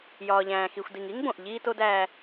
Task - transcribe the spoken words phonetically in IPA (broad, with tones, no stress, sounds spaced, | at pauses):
j ɒː˩ ʎ æ̃ː˩ x i˩ xʷ d i˩ ŋ i˥ ŋ b õ˩ ʔ ʎ iː˧ t o˧ d æː˧